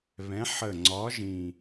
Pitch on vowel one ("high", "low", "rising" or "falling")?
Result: rising